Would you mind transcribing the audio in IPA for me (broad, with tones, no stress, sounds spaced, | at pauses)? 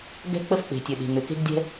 ɡ ɛ̤˥ k͡p ə˥ f k͡p e̤˩ tʲ ø˩ ɗ e̤˩ ŋ ø˩ k e̤˥ ɡ dʲ ɛ̤˥